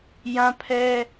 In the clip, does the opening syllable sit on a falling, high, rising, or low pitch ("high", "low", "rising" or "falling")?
high